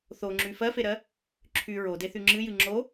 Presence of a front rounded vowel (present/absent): present